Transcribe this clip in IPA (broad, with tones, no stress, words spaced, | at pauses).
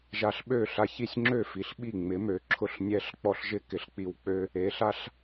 ʒa˧ɬɓø˥˩ɬa˧çi˥˩sʲ ŋ͡ǁø˥˩fi˩ɬ ɓi˥˩ŋ͡mɪ˩˥mø˩˥ ǁʰʊ˥˩ɬnʲɛ˥ɬk͡pɔ˥ɬ ʒɪ˥ kɪ˩˥ɬk͡pi˧wk͡pø˥ | e˩˥ɬa˥ɬ